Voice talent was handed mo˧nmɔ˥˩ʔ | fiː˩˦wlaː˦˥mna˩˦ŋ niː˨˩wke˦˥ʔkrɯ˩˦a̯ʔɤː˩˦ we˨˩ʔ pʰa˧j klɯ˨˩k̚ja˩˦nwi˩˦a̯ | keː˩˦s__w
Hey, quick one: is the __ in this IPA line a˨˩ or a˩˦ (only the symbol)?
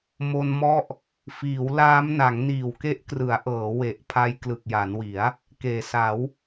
a˩˦